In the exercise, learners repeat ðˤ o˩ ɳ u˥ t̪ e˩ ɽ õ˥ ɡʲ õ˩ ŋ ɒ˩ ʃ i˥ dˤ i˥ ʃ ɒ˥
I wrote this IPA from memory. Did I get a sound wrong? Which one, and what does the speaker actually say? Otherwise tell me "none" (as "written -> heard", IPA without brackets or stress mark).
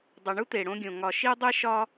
ðˤ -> dˤ